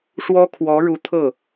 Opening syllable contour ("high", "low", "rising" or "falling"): high